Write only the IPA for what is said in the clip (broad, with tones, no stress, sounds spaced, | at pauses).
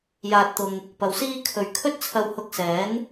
j aː˨ t̚ t̪ ʊ˨ ŋ | p ɐ˨ w s iː˥ kʰ ɵ˨ ɥ kʰ ɵ˥ t̚ t͡sʰ ɐ˧ w h ʊ˧ k̚ s ɛː˨˥ n